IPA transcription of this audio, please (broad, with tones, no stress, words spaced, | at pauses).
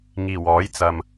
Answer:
ŋiː˨˩wɔː˨˥jt͡sɐ˨m